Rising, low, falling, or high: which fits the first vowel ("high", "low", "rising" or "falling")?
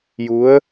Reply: rising